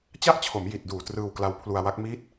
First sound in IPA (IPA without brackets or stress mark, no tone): t͡ɕ